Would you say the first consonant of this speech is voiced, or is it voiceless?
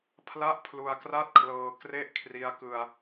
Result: voiceless